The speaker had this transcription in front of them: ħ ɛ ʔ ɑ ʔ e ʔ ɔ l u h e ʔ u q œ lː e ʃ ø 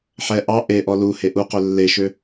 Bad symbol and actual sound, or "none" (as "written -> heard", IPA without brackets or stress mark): none